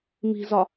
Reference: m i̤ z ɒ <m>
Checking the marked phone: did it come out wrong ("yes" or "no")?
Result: yes